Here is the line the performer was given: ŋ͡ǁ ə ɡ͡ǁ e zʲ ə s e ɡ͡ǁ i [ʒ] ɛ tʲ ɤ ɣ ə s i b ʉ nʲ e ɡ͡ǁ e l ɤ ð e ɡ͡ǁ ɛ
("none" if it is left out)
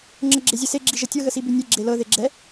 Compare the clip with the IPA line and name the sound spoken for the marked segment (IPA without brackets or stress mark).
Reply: ʒ